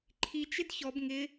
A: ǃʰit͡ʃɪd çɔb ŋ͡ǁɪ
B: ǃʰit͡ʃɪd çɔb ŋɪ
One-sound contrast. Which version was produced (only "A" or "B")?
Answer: B